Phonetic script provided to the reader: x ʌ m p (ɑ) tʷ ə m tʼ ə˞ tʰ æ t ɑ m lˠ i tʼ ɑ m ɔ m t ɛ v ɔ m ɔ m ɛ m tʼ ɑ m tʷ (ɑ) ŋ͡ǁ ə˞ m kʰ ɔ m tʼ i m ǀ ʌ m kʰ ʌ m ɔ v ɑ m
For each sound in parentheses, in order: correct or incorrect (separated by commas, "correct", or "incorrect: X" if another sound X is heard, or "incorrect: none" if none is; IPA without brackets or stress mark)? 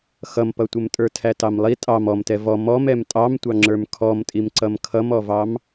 incorrect: ʌ, correct